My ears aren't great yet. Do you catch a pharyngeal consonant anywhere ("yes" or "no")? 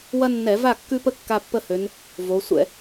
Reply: no